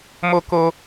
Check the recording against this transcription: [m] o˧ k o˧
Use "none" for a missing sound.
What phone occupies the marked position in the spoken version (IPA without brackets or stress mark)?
m